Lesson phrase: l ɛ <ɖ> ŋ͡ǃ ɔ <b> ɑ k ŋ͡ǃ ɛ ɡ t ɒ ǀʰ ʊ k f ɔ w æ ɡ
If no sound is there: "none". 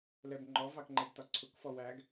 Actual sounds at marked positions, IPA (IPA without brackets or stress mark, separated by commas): b, v